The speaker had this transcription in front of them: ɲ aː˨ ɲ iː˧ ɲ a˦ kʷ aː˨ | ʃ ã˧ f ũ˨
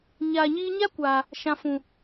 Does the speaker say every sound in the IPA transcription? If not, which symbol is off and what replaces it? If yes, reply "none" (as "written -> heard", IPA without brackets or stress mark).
none